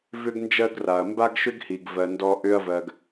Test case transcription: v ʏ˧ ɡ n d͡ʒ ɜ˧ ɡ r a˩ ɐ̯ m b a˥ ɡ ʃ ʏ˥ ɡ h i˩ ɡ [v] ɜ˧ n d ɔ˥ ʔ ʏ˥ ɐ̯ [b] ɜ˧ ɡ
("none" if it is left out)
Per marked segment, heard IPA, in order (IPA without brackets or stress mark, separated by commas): v, v